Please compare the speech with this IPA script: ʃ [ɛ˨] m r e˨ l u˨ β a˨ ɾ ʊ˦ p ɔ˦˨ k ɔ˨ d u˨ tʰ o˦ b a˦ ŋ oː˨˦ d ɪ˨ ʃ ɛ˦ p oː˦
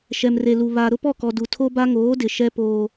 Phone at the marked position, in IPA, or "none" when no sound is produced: ɛ˨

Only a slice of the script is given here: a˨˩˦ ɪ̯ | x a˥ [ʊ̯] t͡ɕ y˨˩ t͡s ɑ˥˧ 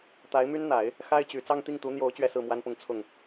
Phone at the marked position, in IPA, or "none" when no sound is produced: ɪ̯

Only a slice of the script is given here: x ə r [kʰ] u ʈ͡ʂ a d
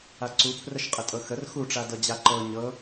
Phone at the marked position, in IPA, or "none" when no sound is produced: x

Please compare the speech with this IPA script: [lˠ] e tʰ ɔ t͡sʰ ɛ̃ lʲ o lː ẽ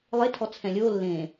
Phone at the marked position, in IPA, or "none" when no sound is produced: lˠ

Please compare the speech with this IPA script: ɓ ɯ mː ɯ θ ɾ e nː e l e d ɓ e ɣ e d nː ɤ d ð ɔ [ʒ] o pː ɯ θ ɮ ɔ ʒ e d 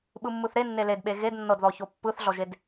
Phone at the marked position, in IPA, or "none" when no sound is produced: ç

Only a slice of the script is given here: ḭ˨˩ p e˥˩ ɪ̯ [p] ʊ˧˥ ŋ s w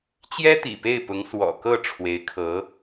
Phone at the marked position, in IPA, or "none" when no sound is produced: p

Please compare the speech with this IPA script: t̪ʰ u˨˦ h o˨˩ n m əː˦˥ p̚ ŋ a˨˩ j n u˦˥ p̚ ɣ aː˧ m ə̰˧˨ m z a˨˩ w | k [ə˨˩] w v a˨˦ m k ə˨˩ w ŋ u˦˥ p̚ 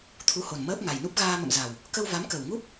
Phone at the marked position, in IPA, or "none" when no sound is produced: ə˧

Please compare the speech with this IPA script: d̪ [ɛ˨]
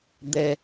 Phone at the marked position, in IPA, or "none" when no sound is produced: ɛ˦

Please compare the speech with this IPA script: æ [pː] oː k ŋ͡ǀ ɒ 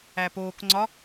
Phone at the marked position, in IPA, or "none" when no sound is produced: p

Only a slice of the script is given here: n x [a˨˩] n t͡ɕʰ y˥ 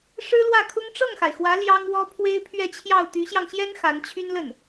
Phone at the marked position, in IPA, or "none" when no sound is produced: a˧˥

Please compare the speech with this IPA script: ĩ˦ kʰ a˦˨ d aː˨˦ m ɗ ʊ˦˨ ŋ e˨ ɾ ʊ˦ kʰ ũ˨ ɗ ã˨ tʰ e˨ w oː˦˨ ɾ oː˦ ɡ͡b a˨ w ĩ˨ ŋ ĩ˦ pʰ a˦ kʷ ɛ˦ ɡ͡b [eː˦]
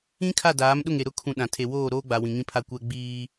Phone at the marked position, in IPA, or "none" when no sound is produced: iː˦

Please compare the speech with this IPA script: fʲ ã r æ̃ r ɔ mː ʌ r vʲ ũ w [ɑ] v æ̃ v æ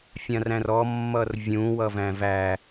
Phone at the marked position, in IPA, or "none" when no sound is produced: ʌ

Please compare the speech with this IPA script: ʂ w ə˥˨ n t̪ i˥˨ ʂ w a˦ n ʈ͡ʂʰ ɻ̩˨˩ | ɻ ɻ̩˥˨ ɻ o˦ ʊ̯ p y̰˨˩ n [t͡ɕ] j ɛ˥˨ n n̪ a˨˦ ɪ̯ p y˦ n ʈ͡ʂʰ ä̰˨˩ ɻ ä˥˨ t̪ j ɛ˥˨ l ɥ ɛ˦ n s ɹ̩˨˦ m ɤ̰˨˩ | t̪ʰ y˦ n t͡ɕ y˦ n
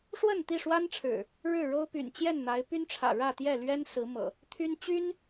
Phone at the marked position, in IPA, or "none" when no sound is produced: t͡ɕ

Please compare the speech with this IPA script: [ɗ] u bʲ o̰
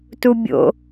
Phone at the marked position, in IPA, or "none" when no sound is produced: t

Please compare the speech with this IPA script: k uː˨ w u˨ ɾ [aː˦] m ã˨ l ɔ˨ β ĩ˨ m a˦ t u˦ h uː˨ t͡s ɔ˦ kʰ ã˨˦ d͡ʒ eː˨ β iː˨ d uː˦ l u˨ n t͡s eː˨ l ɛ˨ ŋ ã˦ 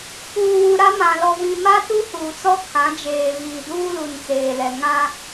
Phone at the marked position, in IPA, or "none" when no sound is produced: a˦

